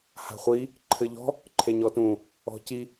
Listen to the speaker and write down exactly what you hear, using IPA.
h a̤ χʷ i | ǃʰ ɘ ʎ ɔ̤ | ǃʰ e ɲ ɔ t ũ | ɔ̤ c i

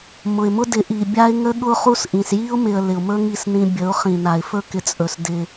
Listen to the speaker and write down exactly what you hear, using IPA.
m ʊ˨ ɪ̯ m ʊ˦ d ɪ˨˦ ʔ i˨ bʲ a˦ ɪ̯ ŋ ə˦ ɠ ʊ˦ χ u˦ s ʔ ĩ˨ s j i˦ ʊ̯ m ɪ˨ ə̯ l ɪ˨ ʊ̯ m ɵ˦ ŋ i˦˨ s n ĩ˦ bʲ ə˨˦ ʊ̯ χ ĩ˨ n a˨ ɪ̯ f ɵ˦ k ɪ˨ t͡sʼ ɵ˨ s d ɪ˦

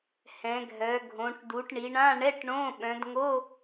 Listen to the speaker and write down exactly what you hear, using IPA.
h ɛ̃˩˧ ɡʱ œ˩˧ ɡʱ õ˩˧ ʈ d u˩˧ ʈ ɳ i˩˧ ɳ ã˧˥˧ ɳ ɛ˧˥˧ ʈ ɳ õ˧˥˧ ɓ œ̃˩˧ d ŋ o˧˥˧

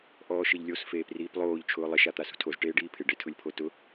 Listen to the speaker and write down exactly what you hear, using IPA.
ʔ ɔː ʃ ɪ ʎ lʲ o s f eː p r iː p lˠ oː ʎ t͡ʃʰ ʊː lˠ ɪ ʃ a t̪ a s ṳ tʰ o z ʈ eː ɖ iː pʰ ɪ ɖ e tʰ ʊ lʲ pʰ o t ʊ

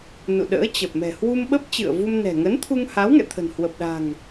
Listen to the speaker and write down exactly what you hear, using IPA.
n ṵ˧˨ ɗ ə̰ː˧˥ t͡ɕ ə˨˩ p̚ m ɛ̤˨˩ h w u˧ m ɓ ə˦˥ p̚ t͡ɕ ɨ̰˧˨ ə̯ v u˧ m n ɛ̤˨˩ ŋ ə˨˦ n t̪ʰ u˧ ŋ h a˨˦ w ŋ ɛ̰˧˨ t̪ʰ ə̤˨˩ n h w ə˨˩ p̚ ɗ a̤˨˩ ŋ

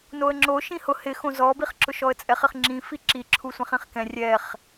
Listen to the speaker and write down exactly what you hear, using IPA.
n o ə̯ ŋ͡ǁ o ʃ ĩ h ʊ h ɪ x õ z ɔ b i χ ǁ ʊ ʃ ɔ ə̯ t͡sʼ ɛ χ ɪ χ ŋ͡ǁ ĩ f i ǁ i ǁʰ u sʷ ɛ̃ χ ĩ χ k ɛ̃ rʲ ɛ χ

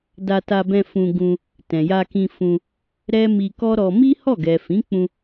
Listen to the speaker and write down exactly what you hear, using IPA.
d a˧ t a˧ b ɛ̃˧ f ũ˧ ɡ ũ˧ | t ɛ̃˨ j a˧ k ĩ˧ f ũ˧ | ɾ ɛ˦ m i˧ k ɔ˦ ɾ ɔ˧ m i˦ h ɔ˦˨ ɡ ɛ˨ f ĩ˨˦ k͡p ũ˧

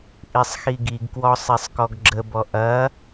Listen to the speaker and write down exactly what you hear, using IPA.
ʔ i sˤ x i ɡ i ɡ k w ɔ sˤ e sˤ k ɔ ɡ ɡ͡ǁ ə b ɔ ʔ ɐ

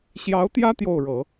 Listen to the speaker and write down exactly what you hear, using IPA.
ɕ j ɑ˧˥ ʊ̯ t̪ j ä˥ t̪ j o˥˩ ʊ̯ ɻ ɤ˨˩˦

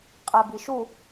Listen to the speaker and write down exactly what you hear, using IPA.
qʼ ɛ b i ʃ u

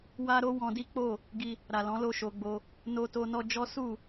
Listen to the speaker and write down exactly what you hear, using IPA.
w a˦ ɾ o˦ w ɔ̃˧ d i˦ k͡p o˦˨ | ɡ i˧ | ɾ a˨ l ɔ̃˨˦ l o˦˨ ʃ o˧ ɡ͡b o˧ | n o˧ t o˧ n ɔ˧ d͡ʒ ɔ˦ s u˦˨

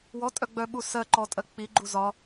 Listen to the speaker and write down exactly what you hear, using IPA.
w ɔ tʼ œ ɡ͡b œ ɓ u s ɜ ǃ ɔ tʼ ɜ k͡p i ɡ͡ǃ u z ɒ

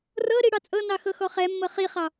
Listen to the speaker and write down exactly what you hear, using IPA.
r ɤ ɾ i ɽ ɑ t͡sʼ ɤ n ɑ x ɤ x ɔ χ ɛ mː ɤ χ i χ ɑ

